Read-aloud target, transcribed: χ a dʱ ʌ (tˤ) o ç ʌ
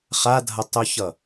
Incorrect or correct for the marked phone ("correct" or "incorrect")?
correct